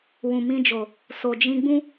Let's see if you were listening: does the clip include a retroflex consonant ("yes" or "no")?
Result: no